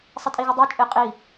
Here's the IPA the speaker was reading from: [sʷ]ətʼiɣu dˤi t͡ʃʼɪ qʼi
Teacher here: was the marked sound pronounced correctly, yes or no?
no